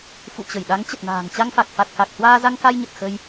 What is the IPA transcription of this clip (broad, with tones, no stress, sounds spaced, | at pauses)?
f ṵ˧˨ t͡ɕ ə˧˩ j ɗ a˨˦ ŋ t͡ɕ ə˨˩ t̚ n a̤ː˨˩ ŋ t͡ɕ a˧ ŋ f a˨˩ k̚ f a˨˩ t̚ k a˨˩ k̚ h w aː˧ z a˧ ŋ k a˧ j ɲ ə˨˩ t̚ x ə˧ j